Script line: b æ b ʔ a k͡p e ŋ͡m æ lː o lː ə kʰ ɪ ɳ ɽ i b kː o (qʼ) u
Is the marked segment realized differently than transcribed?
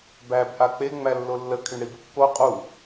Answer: no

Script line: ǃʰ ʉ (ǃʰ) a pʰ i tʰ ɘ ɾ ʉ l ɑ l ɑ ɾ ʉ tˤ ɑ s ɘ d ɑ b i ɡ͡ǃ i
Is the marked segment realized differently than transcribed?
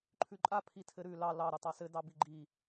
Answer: yes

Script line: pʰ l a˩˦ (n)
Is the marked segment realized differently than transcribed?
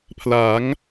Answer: yes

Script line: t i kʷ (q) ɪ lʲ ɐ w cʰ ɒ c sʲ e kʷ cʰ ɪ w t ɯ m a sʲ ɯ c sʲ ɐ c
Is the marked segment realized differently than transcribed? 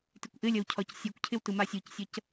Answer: yes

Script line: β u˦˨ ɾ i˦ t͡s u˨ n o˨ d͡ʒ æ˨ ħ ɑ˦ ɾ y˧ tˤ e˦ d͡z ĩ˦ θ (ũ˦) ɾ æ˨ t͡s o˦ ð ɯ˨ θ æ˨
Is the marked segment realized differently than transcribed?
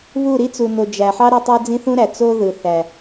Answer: no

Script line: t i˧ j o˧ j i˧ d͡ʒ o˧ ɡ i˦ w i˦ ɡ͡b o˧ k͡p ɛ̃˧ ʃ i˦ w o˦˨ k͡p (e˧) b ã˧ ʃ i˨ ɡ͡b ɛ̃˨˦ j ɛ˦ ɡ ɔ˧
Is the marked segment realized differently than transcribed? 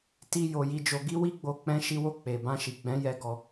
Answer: yes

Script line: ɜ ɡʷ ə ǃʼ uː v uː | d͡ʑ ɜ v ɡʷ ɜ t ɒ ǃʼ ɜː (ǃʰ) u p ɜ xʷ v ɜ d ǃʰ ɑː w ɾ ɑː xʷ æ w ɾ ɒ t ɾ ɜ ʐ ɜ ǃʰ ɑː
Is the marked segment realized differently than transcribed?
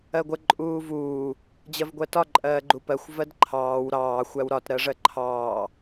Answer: yes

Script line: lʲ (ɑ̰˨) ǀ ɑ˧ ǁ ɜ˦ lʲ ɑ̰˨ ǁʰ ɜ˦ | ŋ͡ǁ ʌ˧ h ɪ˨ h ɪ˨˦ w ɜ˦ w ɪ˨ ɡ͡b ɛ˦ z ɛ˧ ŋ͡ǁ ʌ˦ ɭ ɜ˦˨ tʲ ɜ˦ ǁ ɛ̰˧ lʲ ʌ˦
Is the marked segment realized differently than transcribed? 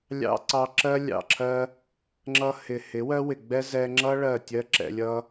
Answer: yes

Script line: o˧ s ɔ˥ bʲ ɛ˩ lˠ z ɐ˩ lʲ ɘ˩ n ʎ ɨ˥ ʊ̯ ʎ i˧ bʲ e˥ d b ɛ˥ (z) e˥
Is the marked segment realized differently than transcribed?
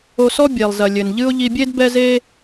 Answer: no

